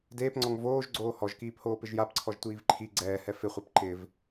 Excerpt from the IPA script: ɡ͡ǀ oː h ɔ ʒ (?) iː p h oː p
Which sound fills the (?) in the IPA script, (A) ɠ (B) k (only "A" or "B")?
B